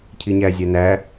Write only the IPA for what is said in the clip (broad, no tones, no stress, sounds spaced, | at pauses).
cʰ i ɲ æ zʲ æ n æ